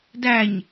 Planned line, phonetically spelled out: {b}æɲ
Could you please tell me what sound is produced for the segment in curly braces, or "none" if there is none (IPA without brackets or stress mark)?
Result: d